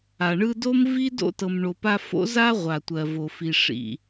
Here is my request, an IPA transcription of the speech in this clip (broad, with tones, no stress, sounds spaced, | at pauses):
a˩ ɳ ɯ˦ d o˥ m v i˥ d o̰˥ t ɤ˨ m ɳ o˨ p a˦ f o̰˥ z a˥ ʁʷ a˩ tʷ ɜ˩ v o˩ f i˨ ʂ ḭ˨